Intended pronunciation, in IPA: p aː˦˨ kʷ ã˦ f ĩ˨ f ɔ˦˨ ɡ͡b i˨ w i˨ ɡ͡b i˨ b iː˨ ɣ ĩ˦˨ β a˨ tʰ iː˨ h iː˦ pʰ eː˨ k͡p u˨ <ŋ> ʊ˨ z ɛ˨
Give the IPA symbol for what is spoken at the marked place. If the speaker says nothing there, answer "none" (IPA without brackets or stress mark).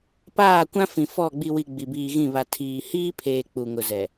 ŋ